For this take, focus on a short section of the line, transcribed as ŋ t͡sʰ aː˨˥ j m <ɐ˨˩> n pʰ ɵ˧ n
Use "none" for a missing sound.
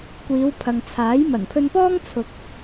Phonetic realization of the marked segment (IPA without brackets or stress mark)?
ɐ˨˩